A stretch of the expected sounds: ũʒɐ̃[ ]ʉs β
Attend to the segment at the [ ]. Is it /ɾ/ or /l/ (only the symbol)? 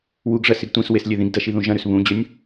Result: ɾ